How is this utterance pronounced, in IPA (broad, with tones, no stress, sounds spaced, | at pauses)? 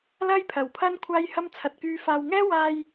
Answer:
l ɐ˥ j pʰ ɐ˨˩ w pʰ ɐ˥ n kʷʰ aː˥ j h ɐ˥ m t͡sʰ ɐ˨ t̚ k yː˧ f aː˧ w ŋ ɛː˥ w aː˧ j